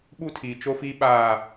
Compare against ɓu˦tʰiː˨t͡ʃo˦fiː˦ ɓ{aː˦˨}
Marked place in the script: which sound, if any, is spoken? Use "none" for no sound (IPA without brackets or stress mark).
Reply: aː˦˨